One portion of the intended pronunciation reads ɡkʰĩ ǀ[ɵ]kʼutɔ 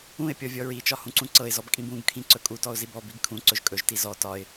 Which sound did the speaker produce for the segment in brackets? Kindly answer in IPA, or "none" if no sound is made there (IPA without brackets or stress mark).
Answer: ɵ